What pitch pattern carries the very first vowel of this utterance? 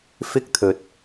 high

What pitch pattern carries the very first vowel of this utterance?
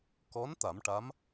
rising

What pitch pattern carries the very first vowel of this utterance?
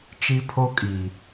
high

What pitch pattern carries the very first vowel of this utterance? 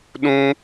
high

